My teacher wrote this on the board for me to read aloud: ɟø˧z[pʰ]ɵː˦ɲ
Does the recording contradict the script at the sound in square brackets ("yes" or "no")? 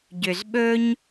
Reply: yes